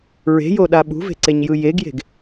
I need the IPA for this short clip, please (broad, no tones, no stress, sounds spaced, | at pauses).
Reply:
ɹ e̤ j o ɗ a ɓ ṳ v e̤ ǀ e ɲ j ɯ j e ɡ j e̤ ɡ